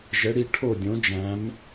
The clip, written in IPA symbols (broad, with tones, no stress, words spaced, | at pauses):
ʒɘ˩˧ɽi˩˧ ʈʰo˧˩dʲõ˩˧d͡ʒæ̃˩˧m